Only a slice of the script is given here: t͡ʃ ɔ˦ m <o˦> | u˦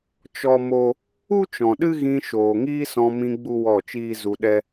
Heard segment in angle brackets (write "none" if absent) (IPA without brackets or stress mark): o˦